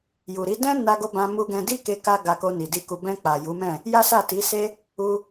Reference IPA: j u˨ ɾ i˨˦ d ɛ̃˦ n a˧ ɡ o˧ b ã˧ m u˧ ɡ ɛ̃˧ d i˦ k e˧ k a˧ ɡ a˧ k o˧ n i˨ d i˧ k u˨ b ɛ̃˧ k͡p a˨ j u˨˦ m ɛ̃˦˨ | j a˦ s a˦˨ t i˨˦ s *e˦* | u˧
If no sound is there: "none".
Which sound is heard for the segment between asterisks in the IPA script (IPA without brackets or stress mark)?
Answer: e˦